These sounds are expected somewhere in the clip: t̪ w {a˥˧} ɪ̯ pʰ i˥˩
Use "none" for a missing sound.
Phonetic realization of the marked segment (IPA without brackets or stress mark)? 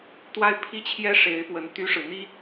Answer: a˥˧